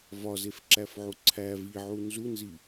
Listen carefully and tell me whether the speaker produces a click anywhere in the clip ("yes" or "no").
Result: yes